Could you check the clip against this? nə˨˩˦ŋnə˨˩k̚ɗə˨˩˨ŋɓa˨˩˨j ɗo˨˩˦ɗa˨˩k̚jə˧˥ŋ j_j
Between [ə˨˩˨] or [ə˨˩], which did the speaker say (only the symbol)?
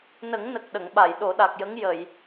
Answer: ə˨˩˨